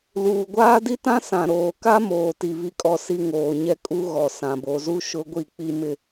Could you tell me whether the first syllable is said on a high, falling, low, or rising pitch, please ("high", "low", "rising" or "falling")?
low